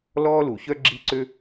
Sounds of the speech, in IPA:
l ɔː˥ l u˨˩˦ ç œ˥ ɡ͡ǁ i˥ ǀ ø˥

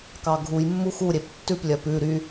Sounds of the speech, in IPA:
k ɑ ɡʱ u j mː u x u ɾʲ e p tː ʉ p lʲ œ p ʉ ɾ y

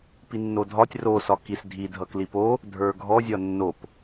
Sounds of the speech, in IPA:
p i nː o dʱ ɒ tʲ r o s ɒ k i s dʱ i dʱ ʌ k l i p o | dʱ ə˞ ɡʱ ɔ zʲ ɒ nː o p

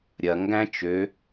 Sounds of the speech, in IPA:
ɾʲ ɐ ŋ ɡ æ̃ t͡ʃ ø

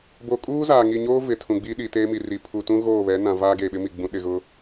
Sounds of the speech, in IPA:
b o˨ kʼ uː˦ z aː˨ ŋ i˨ ɲ oː˦ v ɪ˨ tʰ ũ˨ ɡ͡b iː˦ ɗ i˨ t eː˦ m i˨ r i˨ pʰ u˨ t ũ˦ ɣ oː˦˨ β ɛ˨˦ n ã˨ v aː˦ ɡ eː˨ ɓ ɪ˦ m i˨ ɡ͡b ũ˨ ɗ ɪ˨ ɣ ʊ˦

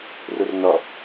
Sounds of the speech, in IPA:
r u r n ɔ

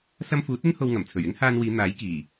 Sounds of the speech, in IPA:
s ɐ˧ m f uː˨˥ t̚ ɪ˥ ŋ h o˧ w ŋ ɐ˨˩ m t͡sʰ ɵ˨˩ ɥ ɪ˥ ŋ h aː˧ n w iː˨˧ n̪ aː˨˥ j k iː˨˩

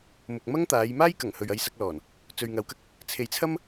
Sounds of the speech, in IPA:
m ʊ˨ k̚ m ɐ˥ ŋ t̪ aː˨˧ j m aː˥ j k ɐ˨˩ ŋ h ɵ˨ ɥ ɐ˧ j s ɐ˧ k̚ l ɔː˨˩ n | t͡s ɵ˨ ɥ ŋ ɐ˨˧ w k ɐ˧ k̚ | t͡sʰ e˨˧ j t͡sʰ ɐ˥ m

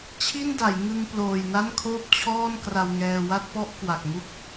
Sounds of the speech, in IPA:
t͡ɕʰ i˥˩ n d a˩˦ j ŋ ɯ˧ ŋ p l oː˨˩ j n a˥˩ n kʰ oː˥˩ p̚ t͡ɕʰ ɔː˥˩ n k r a˧ w ŋ ɛː˧ w a˥˩ t̚ p ɔ˥˩ ʔ k w a˨˩ k̚ ŋ u˥˩ k̚

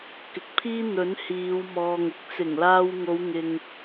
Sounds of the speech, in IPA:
k ɪ˨ k̚ pʰ iː˥ n̪ ɵ˨˥ n h iː˨˧ w m ɔː˨ ŋ ɪ˨˥ k̚ t͡s ɪ˨˩ ŋ l aː˧ w ŋ o˨˧ w ŋ ɪ˨ ŋ

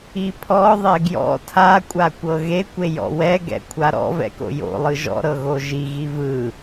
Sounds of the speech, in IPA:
i pʰ ɔ ðˤ e ɡ j ɔ̰ tʰ a kʷʼ a kʷ ɤ ɣ e kʷ e j ɔ̰ w ɛ ɡ ɛ̰ kʷʰ a ɾ ɔ̰ v ɛ̰ k o̰ j o̰ lˠ ɯ ʒ ɔ̰ ɾ ɤ ɣ o ʒ i ɣ i v ɯ

